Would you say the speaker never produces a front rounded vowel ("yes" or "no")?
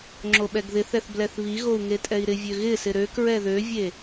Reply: no